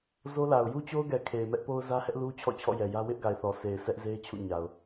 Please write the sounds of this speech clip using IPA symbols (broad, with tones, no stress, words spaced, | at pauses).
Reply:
zo˦la˨ʊ̯ ju˦t͡ɕo˦ʊ̯ɡɛ˨ kʰe˨ɪ̯mɛ˦ʔpo˦ʊ̯ zä˦hɛ˦ʔlu˦ t͡ɕʰɔ̰˦˨t͡ɕʰɔ̰˦˨ jɛ˨jä˦ wɪ˦ʔɡa˨ɪ̯ θɔ˨se˨ɪ̯ sʰɛ˦ʔze˦ɪ̯t͡ɕʰṵ˦˨ ɲa˨ʊ̯